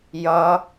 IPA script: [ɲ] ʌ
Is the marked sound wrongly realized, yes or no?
yes